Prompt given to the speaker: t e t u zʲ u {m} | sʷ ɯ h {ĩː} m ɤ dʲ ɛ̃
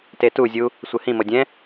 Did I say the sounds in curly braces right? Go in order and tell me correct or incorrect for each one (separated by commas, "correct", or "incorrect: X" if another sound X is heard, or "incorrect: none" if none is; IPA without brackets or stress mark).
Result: incorrect: none, incorrect: ĩ